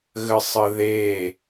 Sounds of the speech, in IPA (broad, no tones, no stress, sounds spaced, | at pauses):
ɣ ə sˤ ə ð e